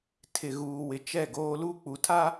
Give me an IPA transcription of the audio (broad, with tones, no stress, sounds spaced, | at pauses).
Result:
tʰ ɪ˨ ɣ uː˨ w ɪ˨ t͡ʃ ɛ˦˨ ɡ oː˦ l u˦ k͡p u˨ tʰ a˦